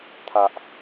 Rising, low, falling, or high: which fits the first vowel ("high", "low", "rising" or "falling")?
low